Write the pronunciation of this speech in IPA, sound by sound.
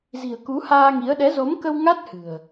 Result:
z i̤˨˩ ə̯ k u˨˦ h aː˧ ŋ i˨˦ ə̯ ɗ ɛ˨˦ z o˨˦ m k ə˧ w ŋ a˦˥ t̚ h ɨ̤˨˩ ə̯

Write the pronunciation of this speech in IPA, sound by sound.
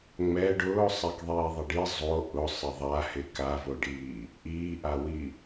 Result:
ŋ͡m ɛ ɖ ʊː sˤ ɛ k ðˤ iː ðˤ ɪ ɖ i zˤ o ʔ ʊ sˤ ɪ ðˤ a h ɪ k a v o ɖ iː | ʔ iː ʔ a w i

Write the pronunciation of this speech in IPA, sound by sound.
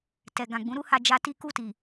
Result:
t ɛ˨ ɡ ã˨ ɡ͡b ũ˨˦ ɾ u˦ h a˧ d͡ʒ a˧ t i˦ k u˦˨ t i˨

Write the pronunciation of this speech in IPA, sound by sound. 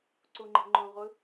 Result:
ǀ u ŋ͡ǃ e̤ ŋ͡ǃ õ ʁʷ ɯ

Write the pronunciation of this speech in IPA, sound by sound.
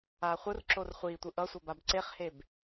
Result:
aː χʷ ɯ r ǁ o r χʷ iː tʷ ɯ ʔ ʌ sʷ ʌ b a b ǀ e χ h e b

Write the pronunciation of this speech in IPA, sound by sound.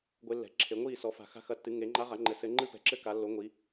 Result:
ɡʷ e˧˥ lː ɛ̤˩˥ ǁʰ e˩˥ ŋʷ iː˥˩ s ɔ˩˥ f a̤˨ x a̤˥˩ x ɐ˧˥ tː ɨ˩˥ ŋ e˩˥ ŋ͡ǃ a˧˥ ʁ a˩˥ ŋ͡ǃ ɘ˨ s ɘ˧˥ ŋ͡ǃ ɨ˥ p ɛ̤˨ ǁ ɘ˥ k a˩˥ lː o˩˥ ŋʷ i˩˥

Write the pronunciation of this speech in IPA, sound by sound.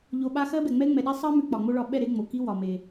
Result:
ʎ o˧ ɓ a˦ x ɜ˦ b ɛ˨ ŋ͡m ɛ˦ ŋ͡m ɛ˨ ɗ ɛ˦ sˤ ɜ˦ m ʉ˧ k͡p ɒ˨ ŋ͡m o˦ ɭ ɒ˧ ɓ ɛ˦˨ ɾ e˧ ŋ͡m o˨ k i˦ w ɒ˨ m e˨

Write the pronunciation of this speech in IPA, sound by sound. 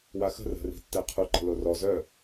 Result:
w a x ə̤ r ə̤ r i̤ tː ɛ qʰ u ǃ ə̤ l o r ɔ z œ

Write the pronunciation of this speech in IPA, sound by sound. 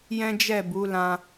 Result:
j ɛ̃˦ d͡ʒ ɛ˦˨ b u˨˦ l ã˧

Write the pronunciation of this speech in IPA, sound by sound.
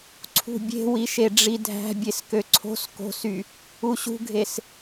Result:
ǀʰ ṳ bʲ e̤ w i ʃ e ɖ͡ʐ i dʱ æ̤ bʲ e s k ø ǀʰ o̤ s k o̤ s y | u ɕ ṳ ɡʱ e s

